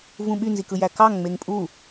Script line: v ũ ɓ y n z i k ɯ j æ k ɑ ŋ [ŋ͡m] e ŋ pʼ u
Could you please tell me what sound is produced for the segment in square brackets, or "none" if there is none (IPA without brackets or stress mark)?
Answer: ŋ͡m